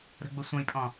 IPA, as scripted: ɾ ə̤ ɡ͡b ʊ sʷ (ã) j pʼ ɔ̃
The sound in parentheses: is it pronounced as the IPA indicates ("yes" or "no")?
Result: no